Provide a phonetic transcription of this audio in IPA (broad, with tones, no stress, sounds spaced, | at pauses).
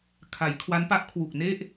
kʰ a˩˦ j kʰ w a˦˥ n p a˦˥ ʔ kʰ w u˨˩ k̚ n e˥˩ ʔ